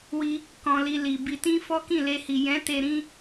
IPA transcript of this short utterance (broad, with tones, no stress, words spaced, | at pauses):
wi˧ | kɔ̃˧li˧li˨ bi˨tĩ˧ fɔ˦kĩ˦˨le˧hi˨ jɛ̃˨˦ te˧ɾĩ˦